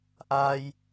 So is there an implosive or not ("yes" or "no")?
no